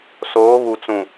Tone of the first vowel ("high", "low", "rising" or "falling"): rising